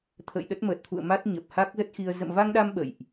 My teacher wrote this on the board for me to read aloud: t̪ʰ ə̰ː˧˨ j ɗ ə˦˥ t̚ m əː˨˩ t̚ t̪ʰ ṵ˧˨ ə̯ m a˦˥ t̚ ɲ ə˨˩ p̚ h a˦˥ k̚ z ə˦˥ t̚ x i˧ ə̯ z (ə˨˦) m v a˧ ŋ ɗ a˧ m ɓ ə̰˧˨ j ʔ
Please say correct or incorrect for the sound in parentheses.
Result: incorrect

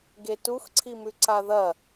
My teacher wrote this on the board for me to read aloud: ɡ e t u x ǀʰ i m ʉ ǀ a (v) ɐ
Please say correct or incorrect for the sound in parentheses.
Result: incorrect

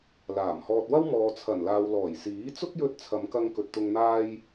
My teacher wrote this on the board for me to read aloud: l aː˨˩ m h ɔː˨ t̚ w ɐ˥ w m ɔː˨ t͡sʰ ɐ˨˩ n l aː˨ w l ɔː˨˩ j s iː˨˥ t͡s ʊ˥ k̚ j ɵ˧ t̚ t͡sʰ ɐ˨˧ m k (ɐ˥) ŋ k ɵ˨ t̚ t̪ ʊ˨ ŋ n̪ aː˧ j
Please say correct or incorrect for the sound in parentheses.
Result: incorrect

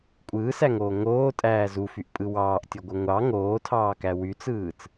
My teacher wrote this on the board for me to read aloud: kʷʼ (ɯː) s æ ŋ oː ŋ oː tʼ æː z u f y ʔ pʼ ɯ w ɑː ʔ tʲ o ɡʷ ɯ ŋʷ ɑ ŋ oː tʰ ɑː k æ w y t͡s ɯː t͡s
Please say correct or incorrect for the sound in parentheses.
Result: correct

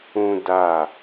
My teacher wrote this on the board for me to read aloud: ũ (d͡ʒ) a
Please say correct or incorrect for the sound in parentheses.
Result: incorrect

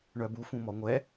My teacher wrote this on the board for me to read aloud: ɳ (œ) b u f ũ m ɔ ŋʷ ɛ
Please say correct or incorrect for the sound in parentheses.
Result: correct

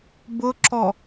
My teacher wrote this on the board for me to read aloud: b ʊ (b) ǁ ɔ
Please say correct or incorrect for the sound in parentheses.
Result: incorrect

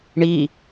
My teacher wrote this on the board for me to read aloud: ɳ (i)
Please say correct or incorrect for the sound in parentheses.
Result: correct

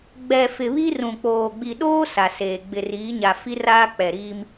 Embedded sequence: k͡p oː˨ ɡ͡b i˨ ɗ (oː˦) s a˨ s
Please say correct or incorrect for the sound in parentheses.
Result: correct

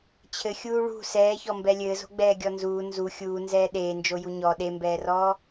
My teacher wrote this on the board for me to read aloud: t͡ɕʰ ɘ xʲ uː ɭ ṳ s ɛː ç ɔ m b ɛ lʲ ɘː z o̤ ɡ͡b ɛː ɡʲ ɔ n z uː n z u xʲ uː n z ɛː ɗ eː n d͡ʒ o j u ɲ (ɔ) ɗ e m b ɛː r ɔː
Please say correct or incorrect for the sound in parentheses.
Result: correct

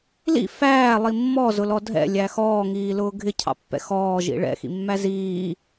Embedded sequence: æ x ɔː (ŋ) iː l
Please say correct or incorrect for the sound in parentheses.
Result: correct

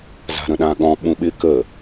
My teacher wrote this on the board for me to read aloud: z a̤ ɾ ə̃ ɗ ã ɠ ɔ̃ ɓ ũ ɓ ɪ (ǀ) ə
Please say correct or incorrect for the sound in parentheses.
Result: incorrect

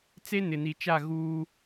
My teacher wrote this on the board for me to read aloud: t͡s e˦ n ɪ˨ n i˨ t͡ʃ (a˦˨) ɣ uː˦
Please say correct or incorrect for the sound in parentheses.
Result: correct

